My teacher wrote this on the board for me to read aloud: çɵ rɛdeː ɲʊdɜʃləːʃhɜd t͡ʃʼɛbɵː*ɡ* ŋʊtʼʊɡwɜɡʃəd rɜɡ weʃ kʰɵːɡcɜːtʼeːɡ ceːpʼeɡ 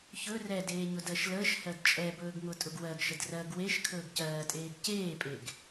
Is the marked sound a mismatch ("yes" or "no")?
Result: no